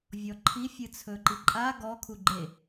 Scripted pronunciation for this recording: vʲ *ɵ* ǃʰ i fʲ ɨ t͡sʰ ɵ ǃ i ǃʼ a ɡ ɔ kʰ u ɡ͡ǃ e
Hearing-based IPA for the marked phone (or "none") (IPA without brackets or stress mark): ɔ